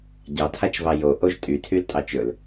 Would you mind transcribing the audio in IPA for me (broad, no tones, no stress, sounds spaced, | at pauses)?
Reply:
ɟ ɑ tʰ a t͡ʃ v ɑ j o ʔ o ʒ tʼ y tʰ y l tʼ ɑ t͡ʃ ɵ l